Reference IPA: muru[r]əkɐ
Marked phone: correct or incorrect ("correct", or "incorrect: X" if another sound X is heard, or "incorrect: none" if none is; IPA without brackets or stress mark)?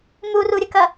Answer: incorrect: ɾʲ